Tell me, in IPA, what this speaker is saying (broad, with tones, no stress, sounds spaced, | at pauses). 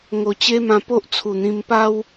ŋ o˨˩ t͡ɕ e˦ m ã˧ p o˦ ʔ t͡sʰ u˨˩ n̪ ĩ˧ m p a˦ w